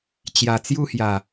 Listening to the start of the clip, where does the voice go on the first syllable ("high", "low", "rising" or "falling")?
low